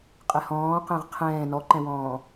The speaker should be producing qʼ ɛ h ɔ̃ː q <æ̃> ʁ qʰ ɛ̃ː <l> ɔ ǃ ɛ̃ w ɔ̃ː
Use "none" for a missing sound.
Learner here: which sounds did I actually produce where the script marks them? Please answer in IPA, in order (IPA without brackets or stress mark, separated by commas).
ɛ̃, n